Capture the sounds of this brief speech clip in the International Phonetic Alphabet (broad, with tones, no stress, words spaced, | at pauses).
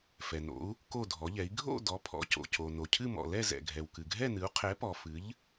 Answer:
fɛ˩no̰˩˥u̯ | ko˥˨dʱɔ˩˥ʎɛ˩˥i̯ ɡʱo̰˥˨ dɔ˩˥pʰɔ̰˩˥co̰˩co˩ no˩cʰɨ˥˨mɔ̰˩ lɛ˥˨ zɛ̰˩ɡʱɛ˩w kɨ˩ɡʱɛ˥˨nɨ˩˥u̯ qʰɛ˩˥pɔ˩ fɨ˩˥ʎ